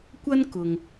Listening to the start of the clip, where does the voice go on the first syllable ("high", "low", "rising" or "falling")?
high